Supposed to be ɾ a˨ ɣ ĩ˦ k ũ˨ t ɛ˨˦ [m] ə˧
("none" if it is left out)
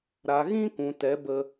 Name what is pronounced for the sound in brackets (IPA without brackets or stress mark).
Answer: b